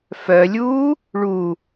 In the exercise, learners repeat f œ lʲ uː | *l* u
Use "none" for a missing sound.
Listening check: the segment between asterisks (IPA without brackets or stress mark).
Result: ɭ